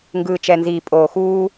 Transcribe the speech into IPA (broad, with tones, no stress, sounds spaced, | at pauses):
ŋ ɡ ɯː˨ t͡ʃ ɛ˨ n z iː˨ pʼ oː˨ x uː˦